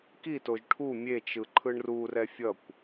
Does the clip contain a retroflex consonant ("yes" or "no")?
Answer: yes